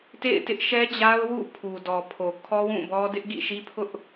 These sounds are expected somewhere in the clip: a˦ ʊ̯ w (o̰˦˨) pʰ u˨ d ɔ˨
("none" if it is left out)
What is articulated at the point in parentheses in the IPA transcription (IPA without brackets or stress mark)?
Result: ṵ˦˨